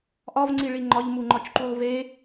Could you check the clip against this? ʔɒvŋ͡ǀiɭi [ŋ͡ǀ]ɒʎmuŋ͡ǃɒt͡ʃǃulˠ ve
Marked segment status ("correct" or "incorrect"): incorrect